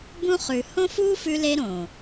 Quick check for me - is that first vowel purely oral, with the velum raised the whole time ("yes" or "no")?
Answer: no